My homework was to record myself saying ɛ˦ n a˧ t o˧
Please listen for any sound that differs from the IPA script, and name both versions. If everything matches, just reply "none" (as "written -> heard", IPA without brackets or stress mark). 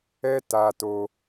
n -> t